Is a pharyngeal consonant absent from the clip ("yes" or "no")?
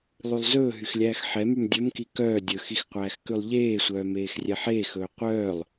no